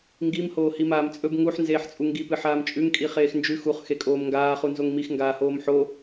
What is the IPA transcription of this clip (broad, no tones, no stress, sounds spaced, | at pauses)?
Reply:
ŋ ɡ i m h oː h i m aː m t͡sʼ ɵ b ŋ u ħ n z eː ħ t͡sʼ u ŋ ɡ i p ɨ ħ aː m t͡ʃʼ ʉ ŋ kʼ i χ eː x n d͡ʒ ʉ x u χ x e kʼ oː m ŋ ɡ aː χ u n z o ŋ m i x ŋ ɡ aː h oː m ħ o